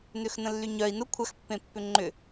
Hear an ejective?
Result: no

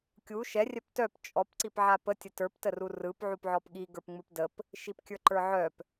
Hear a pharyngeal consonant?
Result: yes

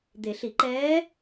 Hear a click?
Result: yes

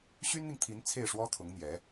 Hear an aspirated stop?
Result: yes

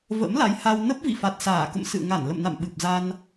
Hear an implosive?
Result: yes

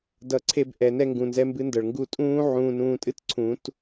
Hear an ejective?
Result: yes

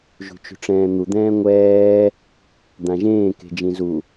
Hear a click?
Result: no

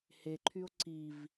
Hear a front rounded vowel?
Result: yes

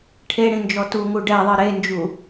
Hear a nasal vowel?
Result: yes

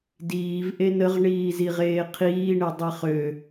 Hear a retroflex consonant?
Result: yes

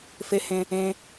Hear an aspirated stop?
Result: no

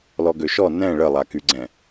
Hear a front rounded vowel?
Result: yes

